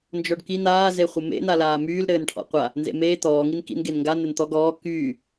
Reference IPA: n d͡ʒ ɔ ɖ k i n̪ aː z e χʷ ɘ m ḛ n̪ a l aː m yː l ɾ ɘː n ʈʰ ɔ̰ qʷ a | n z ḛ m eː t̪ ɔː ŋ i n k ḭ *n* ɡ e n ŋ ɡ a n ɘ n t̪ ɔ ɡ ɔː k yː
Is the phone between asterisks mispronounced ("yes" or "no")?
no